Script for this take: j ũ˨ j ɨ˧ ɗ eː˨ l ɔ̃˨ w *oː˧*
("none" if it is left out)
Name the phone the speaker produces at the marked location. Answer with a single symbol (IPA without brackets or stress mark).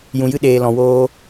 oː˧